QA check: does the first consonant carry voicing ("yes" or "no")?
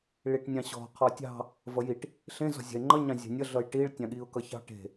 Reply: yes